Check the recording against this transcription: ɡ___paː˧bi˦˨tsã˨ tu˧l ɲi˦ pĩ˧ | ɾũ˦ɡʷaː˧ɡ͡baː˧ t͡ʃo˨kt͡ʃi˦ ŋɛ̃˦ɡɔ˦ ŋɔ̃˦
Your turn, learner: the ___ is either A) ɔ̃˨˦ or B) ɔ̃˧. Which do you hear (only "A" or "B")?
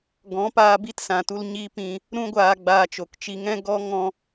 A